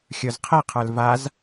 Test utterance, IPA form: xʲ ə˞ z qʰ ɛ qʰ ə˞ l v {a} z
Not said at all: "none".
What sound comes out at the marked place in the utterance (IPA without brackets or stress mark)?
a